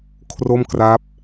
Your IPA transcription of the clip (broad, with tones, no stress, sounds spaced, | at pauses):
kʰ r o˥˩ m k r a˦˥ p̚